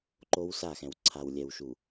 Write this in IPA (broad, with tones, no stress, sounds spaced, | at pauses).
ǃ o˦ w s a˦˨ x ɛ̃˨ w ǀʰ a˨ w lʲ ɛ˨ w ʃ u˨